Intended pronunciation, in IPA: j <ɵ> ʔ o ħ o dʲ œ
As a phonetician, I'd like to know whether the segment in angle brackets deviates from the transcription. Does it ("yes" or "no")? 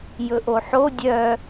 no